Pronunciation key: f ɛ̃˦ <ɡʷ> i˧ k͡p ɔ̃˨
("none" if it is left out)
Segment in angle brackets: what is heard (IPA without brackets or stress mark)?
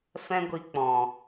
ɡʷ